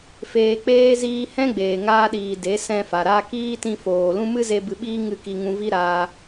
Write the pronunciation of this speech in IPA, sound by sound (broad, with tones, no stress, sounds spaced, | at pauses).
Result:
f eː˧ k͡p eː˦ z iː˧ h ɛ̃˦ ɡ͡b eː˨ ŋ aː˧ ɗ iː˨ d e˨˦ s ɛ̃˧ f a˨ ɾ a˧ k iː˦ t ĩ˧ f oː˨ l ũ˦ m ɨ˦ z e˦ b ɨ˧ ɓ iː˦ ŋ ɨ˦˨ k i˧ ŋ ũ˧ v i˦ ɾ aː˧